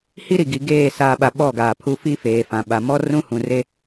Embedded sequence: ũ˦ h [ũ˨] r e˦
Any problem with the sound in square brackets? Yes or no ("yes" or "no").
no